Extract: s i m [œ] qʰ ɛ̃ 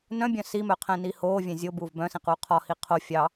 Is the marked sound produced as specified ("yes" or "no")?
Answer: yes